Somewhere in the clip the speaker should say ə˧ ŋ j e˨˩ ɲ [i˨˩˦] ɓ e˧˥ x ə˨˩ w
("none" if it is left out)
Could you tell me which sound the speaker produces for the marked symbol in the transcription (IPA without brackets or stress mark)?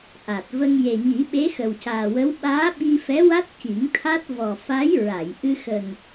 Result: i˨˩˦